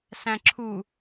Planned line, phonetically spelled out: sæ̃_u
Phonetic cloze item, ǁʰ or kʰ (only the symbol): ǁʰ